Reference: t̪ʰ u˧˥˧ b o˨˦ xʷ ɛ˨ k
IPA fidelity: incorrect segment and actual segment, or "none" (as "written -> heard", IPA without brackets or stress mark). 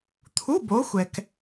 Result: none